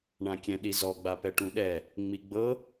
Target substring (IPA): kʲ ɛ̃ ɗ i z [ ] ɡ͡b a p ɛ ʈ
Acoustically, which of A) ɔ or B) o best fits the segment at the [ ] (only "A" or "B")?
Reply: A